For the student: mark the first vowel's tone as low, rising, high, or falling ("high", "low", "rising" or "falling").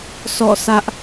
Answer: falling